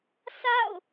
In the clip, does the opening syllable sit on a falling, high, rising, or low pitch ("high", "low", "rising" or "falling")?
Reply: falling